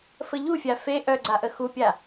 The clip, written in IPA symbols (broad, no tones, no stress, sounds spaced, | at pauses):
f ə ʎ u fʲ a f e ʔ œ ɡ͡ǀ a ʔ ə x u pʲ a